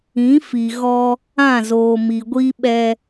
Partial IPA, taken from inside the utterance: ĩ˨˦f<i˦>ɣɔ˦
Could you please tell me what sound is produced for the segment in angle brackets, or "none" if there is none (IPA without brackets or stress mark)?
i˨